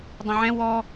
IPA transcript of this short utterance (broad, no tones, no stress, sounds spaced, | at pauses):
dˤ ɛ̃ ʕ ɛ̃ w ɔ